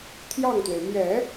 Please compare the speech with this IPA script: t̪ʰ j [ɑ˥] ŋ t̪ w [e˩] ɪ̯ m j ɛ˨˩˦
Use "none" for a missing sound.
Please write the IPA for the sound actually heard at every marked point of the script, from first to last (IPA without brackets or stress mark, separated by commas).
ɑ˥˩, e˩